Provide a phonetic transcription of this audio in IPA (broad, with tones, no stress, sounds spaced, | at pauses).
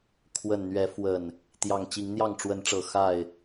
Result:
kʰ w ə˨˩ n n̪ ɥ ɛ˨˦ f w ə˨˩ n | t̪ j ɑ˨˩ ŋ t͡ɕ i˨˦ ŋ n̪ j ɑ˥˨ ŋ ʈ͡ʂ w ə˨˦ n ʈ͡ʂ ɤ˨˩ x a˥˨ ɪ̯